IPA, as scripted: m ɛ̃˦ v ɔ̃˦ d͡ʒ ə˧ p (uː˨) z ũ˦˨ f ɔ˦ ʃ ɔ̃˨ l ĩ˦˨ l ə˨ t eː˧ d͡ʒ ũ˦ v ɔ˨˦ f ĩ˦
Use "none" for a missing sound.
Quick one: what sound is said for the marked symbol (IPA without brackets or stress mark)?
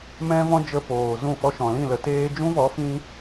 oː˨